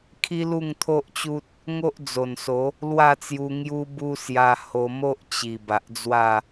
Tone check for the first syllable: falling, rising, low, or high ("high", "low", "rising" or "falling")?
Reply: high